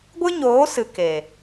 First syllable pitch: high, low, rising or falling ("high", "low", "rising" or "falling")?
high